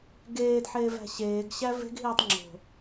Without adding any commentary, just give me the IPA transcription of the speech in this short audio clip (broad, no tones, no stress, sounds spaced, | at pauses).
ɡ eː d ħ eː v æ̤ ɕ eː ɡ ɕ æ v e̤ ɡ ɦ iː tˤ ŋ͡ǁ o̤